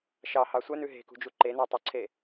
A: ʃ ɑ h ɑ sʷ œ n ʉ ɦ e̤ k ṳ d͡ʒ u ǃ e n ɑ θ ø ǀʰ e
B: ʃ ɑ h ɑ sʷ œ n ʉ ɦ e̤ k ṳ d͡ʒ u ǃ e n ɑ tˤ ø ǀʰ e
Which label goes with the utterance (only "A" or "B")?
B